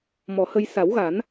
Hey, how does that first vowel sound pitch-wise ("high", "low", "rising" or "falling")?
low